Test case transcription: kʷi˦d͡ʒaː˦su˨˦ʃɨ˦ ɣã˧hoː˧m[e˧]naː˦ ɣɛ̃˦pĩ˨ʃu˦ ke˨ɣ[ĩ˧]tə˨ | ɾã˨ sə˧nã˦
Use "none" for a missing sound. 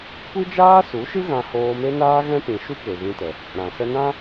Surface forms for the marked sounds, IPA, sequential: e˦, ĩ˧

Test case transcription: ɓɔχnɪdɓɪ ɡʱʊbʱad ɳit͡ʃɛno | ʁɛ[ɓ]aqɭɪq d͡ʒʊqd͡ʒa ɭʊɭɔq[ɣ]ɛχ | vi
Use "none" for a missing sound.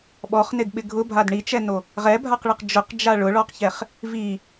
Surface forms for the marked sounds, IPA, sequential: bʱ, ç

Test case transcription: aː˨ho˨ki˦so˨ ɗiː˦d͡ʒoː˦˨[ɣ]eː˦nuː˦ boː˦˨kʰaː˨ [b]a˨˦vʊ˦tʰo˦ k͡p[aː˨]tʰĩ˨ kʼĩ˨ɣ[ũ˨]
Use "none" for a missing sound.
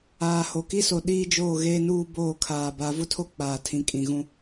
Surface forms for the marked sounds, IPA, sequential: ɣ, b, aː˨, ũ˦

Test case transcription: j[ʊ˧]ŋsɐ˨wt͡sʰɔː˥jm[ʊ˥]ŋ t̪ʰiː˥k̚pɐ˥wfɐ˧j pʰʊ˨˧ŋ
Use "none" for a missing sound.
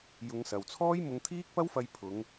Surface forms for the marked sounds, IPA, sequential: ʊ˨˧, ʊ˧

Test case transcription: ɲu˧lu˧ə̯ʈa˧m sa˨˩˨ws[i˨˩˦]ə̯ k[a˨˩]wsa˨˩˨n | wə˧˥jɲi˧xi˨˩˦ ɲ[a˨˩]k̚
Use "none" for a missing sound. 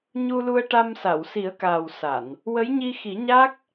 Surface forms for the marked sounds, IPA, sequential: i˨˩˦, aː˨˩, a˦˥

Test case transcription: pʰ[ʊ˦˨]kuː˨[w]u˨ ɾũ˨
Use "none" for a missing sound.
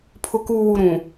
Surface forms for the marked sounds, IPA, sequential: ʊ˨, w

